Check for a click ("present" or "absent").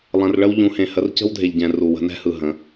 absent